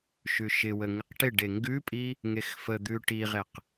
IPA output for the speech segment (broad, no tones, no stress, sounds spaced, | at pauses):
ʃ ʉ ʃ ɪ w ə ŋ ɪ q ʈ ɪ ɖ e ŋ ɡ ʉ pʼ i | ŋ e x f ə d̪ ʉ ʈ i ʁ e q